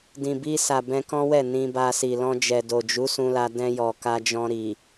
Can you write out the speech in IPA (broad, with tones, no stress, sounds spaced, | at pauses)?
d ĩ˨ b i˧ s a˨ b ɛ̃˧ k ɔ̃˦ w ɛ˦˨ n ĩ˧ b a˧ s i˨ l ɔ̃˧ d͡ʒ ɛ˨ d o˨ d͡ʒ u˨˦ s ũ˧ l a˧ d ɛ̃˧ j ɔ˨ k a˧ d͡ʒ ɔ̃˧ ɾ i˨